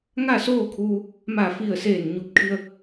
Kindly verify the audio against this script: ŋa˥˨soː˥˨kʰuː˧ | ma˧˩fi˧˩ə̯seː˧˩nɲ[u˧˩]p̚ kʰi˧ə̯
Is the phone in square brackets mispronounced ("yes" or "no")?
no